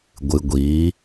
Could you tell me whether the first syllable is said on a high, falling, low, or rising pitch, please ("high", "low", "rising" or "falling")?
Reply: low